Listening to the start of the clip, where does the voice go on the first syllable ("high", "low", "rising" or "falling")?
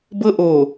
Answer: high